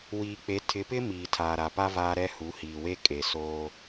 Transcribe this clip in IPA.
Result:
w iː˨ k͡p e˨˦ tʰ ɪ˨˦ p ɪ˦ m iː˨ tʰ aː˨ ɾ a˨ p a˦ v aː˦ ɾ ɛ˦ h u˨˦ h iː˨ w e˦ kʼ e˨ s oː˦

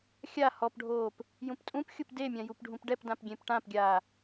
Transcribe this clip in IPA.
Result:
xʲ a h ɔ p ɖʱ oː p | j ũ p tʼ ũ p xʲ u p d e mʲ ã j u p ɖʱ ũ p ɖ ɛ p d ã p ɡʲ ẽ p ʈ ã p ɡʲ aː

